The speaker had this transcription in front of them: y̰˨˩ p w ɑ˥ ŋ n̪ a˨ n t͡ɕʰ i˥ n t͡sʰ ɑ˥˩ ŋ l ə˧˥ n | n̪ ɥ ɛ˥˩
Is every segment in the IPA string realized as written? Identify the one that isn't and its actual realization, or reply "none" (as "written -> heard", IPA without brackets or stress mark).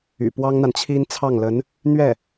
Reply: none